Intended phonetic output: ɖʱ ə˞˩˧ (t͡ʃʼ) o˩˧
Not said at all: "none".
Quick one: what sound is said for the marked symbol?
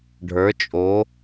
t͡ʃʼ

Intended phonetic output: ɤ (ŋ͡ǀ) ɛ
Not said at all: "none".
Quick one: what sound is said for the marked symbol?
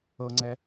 ŋ͡ǀ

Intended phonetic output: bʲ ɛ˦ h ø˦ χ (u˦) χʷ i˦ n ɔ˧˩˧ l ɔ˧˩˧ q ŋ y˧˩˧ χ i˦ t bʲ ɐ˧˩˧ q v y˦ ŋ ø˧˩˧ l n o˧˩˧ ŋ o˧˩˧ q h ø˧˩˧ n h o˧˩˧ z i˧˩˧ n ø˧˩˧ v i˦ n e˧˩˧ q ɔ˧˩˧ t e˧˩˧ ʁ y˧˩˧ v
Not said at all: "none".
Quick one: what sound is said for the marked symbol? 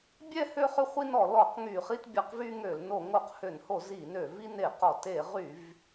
ʏ˦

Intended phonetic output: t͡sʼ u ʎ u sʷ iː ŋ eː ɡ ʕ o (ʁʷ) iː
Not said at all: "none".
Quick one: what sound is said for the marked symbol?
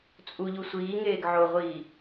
ʁʷ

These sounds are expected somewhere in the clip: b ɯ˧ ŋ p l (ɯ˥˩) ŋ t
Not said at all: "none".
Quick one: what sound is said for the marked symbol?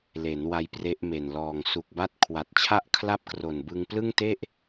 ɯ˥˩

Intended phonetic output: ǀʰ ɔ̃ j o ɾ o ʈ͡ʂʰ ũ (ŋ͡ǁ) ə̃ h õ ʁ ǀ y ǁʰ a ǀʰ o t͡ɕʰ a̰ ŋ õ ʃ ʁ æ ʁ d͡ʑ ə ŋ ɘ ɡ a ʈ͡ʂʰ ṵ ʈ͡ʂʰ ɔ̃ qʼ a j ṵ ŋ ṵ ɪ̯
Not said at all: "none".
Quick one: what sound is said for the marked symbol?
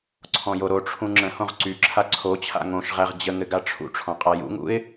ŋ͡ǁ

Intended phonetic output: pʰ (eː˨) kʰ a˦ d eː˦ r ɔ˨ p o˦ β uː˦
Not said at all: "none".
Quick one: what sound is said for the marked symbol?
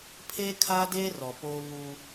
eː˦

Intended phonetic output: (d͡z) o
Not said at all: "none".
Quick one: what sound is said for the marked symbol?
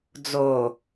d͡z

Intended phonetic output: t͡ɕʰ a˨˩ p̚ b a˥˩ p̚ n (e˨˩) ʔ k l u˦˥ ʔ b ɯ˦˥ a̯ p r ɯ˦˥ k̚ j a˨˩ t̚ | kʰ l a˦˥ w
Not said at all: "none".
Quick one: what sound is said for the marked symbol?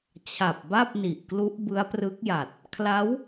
i˨˩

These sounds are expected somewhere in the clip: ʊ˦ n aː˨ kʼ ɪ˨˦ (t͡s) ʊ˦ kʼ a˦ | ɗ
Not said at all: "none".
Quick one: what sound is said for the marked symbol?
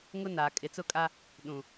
t͡s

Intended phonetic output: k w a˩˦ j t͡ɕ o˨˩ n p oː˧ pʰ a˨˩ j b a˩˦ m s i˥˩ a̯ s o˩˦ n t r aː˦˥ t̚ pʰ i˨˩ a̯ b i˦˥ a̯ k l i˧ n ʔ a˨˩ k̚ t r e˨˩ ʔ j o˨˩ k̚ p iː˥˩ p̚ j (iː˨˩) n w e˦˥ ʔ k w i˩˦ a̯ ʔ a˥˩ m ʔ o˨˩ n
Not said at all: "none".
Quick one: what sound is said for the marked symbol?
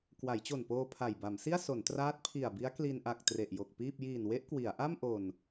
iː˨˩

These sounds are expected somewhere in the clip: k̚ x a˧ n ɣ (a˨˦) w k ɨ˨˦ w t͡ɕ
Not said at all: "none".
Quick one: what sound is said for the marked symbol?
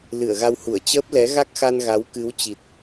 a˨˦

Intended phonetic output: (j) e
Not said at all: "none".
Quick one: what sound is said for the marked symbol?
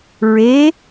ɹ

